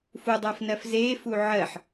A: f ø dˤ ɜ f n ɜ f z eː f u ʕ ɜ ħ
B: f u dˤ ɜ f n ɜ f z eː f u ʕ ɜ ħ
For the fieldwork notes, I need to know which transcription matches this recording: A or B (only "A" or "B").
B